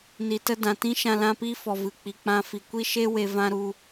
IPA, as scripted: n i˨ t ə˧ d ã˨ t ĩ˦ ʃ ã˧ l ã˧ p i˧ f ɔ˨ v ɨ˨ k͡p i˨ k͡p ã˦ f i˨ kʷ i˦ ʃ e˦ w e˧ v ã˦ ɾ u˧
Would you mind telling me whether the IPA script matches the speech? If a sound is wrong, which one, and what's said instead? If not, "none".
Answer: none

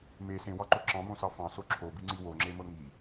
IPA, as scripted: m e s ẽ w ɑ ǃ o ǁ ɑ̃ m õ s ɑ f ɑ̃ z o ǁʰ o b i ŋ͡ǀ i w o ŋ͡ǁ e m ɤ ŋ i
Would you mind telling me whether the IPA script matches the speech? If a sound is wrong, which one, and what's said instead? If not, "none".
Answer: z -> s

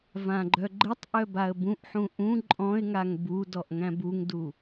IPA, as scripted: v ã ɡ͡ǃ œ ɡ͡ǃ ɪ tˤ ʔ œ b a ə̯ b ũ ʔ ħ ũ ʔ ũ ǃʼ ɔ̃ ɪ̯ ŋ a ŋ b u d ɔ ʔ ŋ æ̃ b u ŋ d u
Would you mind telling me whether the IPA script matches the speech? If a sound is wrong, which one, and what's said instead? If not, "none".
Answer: none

